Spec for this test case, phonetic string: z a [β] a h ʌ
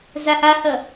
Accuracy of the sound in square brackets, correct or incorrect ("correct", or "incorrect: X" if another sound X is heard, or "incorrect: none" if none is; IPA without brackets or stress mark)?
incorrect: h